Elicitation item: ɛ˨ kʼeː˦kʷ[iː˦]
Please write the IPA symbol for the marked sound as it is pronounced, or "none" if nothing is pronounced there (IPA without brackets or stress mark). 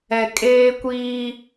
iː˦